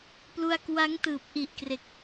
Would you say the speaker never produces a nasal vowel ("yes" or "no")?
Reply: yes